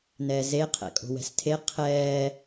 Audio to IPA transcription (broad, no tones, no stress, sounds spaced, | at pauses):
n ɛ z e qʰ ɛ̰ kʼ o̤ w ɛ̤ s tʰ e qʰ ɛː